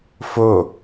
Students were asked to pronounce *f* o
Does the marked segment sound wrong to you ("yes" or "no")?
no